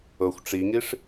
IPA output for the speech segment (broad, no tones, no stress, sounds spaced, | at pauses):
ɤ xʷ ʈ͡ʂ i ŋ i ʂ